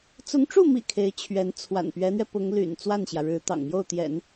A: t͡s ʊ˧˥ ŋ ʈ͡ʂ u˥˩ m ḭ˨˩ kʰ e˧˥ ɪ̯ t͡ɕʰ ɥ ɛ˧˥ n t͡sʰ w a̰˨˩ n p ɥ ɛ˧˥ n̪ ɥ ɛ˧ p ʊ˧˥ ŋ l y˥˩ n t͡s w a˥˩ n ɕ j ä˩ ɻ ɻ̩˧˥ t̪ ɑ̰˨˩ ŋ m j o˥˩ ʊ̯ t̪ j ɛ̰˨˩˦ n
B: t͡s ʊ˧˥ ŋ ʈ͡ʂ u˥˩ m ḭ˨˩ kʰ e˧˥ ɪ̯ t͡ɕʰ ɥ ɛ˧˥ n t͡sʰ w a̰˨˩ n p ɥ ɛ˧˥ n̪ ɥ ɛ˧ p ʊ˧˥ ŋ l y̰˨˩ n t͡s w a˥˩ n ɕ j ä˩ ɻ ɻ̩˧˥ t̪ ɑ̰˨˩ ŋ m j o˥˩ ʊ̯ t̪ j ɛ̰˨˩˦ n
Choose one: B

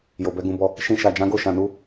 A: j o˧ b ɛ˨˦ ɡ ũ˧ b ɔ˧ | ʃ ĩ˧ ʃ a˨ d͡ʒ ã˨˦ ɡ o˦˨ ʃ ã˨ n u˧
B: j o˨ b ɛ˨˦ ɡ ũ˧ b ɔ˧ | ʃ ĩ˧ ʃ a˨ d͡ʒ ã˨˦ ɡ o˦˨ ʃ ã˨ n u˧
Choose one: B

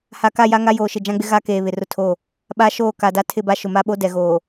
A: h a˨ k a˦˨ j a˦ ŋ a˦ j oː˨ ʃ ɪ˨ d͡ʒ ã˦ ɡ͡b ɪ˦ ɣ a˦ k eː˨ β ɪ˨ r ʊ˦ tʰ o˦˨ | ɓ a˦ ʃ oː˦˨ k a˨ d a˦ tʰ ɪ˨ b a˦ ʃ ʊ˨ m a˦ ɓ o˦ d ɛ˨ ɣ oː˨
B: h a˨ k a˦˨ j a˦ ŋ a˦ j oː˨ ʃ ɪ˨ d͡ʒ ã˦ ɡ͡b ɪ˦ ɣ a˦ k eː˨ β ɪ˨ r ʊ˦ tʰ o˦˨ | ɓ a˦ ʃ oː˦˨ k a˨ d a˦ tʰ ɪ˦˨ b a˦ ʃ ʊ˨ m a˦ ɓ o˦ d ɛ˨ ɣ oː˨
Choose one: B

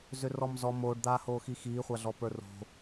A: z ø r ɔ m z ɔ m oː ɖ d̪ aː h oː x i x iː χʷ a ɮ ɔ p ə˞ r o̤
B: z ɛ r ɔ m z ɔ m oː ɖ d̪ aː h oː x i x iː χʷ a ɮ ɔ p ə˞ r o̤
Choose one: A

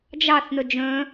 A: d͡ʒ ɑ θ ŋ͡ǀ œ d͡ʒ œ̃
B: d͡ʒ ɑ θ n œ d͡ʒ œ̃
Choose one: B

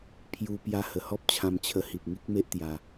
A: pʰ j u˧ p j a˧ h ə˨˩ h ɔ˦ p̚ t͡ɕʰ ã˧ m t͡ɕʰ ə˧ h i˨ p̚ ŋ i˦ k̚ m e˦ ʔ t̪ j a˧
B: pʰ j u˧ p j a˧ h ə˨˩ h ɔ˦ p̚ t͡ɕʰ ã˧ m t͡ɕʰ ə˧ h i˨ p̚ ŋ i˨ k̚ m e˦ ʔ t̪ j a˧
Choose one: A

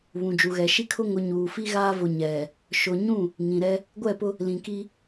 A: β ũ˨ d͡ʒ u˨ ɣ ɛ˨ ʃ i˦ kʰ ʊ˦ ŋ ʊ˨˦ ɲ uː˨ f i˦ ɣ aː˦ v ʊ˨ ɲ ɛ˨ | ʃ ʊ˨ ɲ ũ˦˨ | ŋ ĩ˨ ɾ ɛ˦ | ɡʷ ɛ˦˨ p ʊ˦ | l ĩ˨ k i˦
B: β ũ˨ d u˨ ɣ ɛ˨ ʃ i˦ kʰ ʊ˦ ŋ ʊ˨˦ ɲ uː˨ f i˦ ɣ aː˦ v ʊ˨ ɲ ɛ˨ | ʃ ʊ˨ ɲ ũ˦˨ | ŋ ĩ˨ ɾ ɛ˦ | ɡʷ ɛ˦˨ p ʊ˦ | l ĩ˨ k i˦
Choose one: A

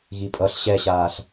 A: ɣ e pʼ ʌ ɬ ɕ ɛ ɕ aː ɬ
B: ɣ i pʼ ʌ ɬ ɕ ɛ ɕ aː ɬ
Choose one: B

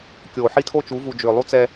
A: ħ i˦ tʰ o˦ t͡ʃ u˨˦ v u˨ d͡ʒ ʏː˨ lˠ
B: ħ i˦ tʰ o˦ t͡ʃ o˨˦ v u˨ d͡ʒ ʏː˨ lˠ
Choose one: A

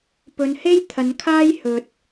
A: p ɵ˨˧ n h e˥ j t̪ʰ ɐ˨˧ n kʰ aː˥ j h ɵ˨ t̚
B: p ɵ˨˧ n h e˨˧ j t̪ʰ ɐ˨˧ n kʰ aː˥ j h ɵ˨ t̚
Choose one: A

